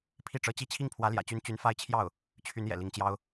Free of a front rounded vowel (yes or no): no